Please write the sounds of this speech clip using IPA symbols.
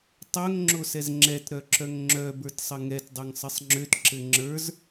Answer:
tˤœŋ ŋ͡ǁosɛzŋ͡ǁɛt ɾœǁœŋŋ͡ǁœ bə˞tsˤəŋɛt dˤøŋsˤɘsˤŋ͡ǁøt ǁɘŋ͡ǁə˞z

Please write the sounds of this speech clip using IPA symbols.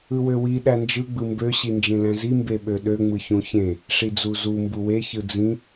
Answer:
ɯwøwi ɗænd͡ʒɯ ɡ͡bɯmbø ɕind͡ʒẽlæ̃zi mbeɓøɗø ŋ͡mɯçũçẽ | ʂid͡zuzu mbuwe çɯd͡zĩ

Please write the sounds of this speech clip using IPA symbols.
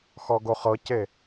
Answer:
xɔɡoχɤce

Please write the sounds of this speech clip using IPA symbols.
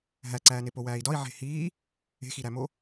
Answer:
ɦæǀæːne powæːi̯dɒi̯ ʕe̤hiː | e̤xiɾæmo

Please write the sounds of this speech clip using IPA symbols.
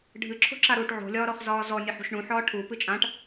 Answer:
ɖʱɨǁʰo̤ǁa ɾuːʈʕo̤lʲɒːɾɔχ zɒːzɔ nʲəħṳʃɳũ ħɒːʈʰu pɨt͡ʃʼãʈ

